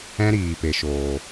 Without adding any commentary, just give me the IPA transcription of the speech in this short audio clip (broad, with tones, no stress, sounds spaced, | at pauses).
ɛ̃˦ ɾ iː˨ p e˨ ʃ oː˨